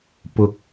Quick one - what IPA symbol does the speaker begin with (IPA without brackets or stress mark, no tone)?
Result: p